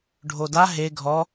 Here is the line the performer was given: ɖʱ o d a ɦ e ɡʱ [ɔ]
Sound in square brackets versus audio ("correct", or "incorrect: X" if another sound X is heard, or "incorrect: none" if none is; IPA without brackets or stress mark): correct